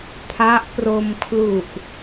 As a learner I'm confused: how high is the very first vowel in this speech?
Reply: low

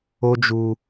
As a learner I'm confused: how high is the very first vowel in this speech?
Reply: mid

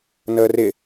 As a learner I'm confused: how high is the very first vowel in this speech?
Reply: mid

